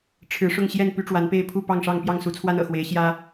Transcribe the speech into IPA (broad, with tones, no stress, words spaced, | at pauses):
ʈ͡ʂʰɻ̩˨˦ʂʊ˥˨ŋ ɕjɛ˥˨n py˦ʈ͡ʂwa˨˦npe˥˨ɪ̯ pʰu˥˨ pɑ˥˨ŋʂɑ˥˨ŋ pjɑ˥˨ŋsu˨˦t͡sʰwa˦n ɤ̰˨˩xwe˨˦ɪ̯ ɕjä˦